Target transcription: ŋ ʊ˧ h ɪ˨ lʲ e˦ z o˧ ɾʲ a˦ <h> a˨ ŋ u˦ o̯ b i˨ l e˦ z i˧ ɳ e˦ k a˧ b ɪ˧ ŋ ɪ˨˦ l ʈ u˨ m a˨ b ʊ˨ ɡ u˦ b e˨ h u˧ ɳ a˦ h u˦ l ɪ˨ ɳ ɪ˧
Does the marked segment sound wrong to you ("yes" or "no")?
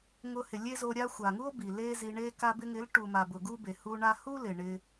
yes